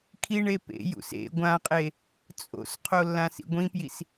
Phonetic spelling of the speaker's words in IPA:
kʰ i ɳ e p ḛ j ṵ s ḛ ɡʷ ã qʼ e | t͡sʼ o̰ s qʰ o lː ã s ḭ ɡʷ ĩ p j i s

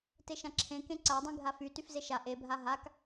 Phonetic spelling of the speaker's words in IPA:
t e ʃ ã ǁʰ ẽ k ẽ ǀ a dˤ ĩ ɡʱ a f y t y f z e ʃ a ʔ e bʱ a ɦ a k

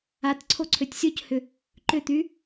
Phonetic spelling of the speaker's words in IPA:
a t ǀʰ o ǀʰ ø tʲ sʲ o c h ʏ | ǃ ʏ t̪ y

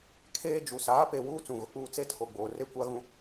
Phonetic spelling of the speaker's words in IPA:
kʰ eː˦ d͡ʒ u˨ s aː˨˦ p e˨ w uː˦ t͡s ũ˨ ɣ ʊ˨ k͡p uː˦ t͡s e˦ tʰ o˨ ɡ͡b oː˨ r e˦ kʷ a˦ ɣ ũ˦

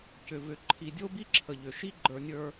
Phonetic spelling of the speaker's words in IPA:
c ʏ˨ v ʏ˨ ǃʰ i˨ dʲ o˦ b i˦ ǁʰ ə˨ ʎ ʏ˨ ʃ i˦ ɡ͡ǃ ə˞˦ nʲ ə˞˦

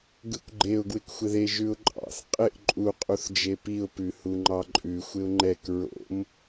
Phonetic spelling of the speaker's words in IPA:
ɡ ɯ kʷ ɡ͡ǃ e ʊ̯ ɡ w ɪ k xʷ ɪ ð e ʒ ʉ ʊ̯ ǃʼ ɑ̰ θ qʼ ɪ ʔ ǃʼ u qʼ u θ d͡ʒ e p i ʊ̯ p ʉ h u ŋ͡ǃ ɑ ǃʼ ʉ xʷ ɪ ʊ̯ ŋ͡ǃ ɛ k ɹ o̰ m

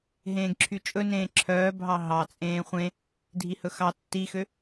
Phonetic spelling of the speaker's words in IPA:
ɦ ẽː ɡ ǁʰ y t͡ʃʼ ɵ n ẽː ǁʰ œː bʱ ɑ ɦ ɑ t͡sʼ ẽː χʷ ẽ | dʱ i h ɵ x ɑ tː i x ø

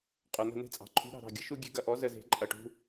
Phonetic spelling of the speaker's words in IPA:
qʼ œ˩ n̪ ə̤˦˨ n e̤˥ t͡sʼ ɑ̤˩ ǃʰ ṳ˧˥ ɾ ɑ̤˦˨ ɾ ɑ̤˦˨ ɡʲ ə̤˥ ʃ u˥ ɡʲ e̤˥ ɡ ɐ˦˨ ʔ ɔ˧˥ z ə˥ z e̤˧˥ ǃʼ ɐ˦˨ ʈ ṳ˥

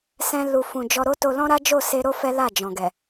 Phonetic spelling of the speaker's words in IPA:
s ɛ̃˧ l u˨ f ũ˨ d͡ʒ ɔ˧ ɾ o˦ t o˧ l ɔ̃˦ ɾ a˦ d͡ʒ o˦˨ s e˧ ɾ o˦ f ɛ˦ l a˦˨ d͡ʒ ɔ̃˨ ɡ ɛ˨

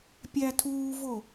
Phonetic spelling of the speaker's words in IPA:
pʲ æ tʰ uː v o

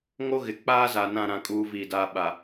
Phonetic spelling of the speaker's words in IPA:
ŋ o˦ ɣ ɪ˨ k͡p aː˦ z a˨ n ã˦˨ ɾ ã˦ kʼ uː˦ v iː˦˨ d aː˦ ɓ a˨

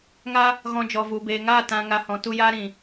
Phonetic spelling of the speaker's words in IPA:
ŋ a˧ | ɣ ɔ̃˧ d͡ʒ ɔ˨ v u˨ b eː˨ ŋ aː˦˨ t ã˨ ŋ a˨ h ɔ̃˨ t u˧ j aː˦ ɾ ĩ˨

